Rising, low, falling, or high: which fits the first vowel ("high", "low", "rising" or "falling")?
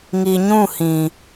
low